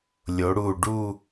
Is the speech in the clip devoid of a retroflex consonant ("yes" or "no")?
no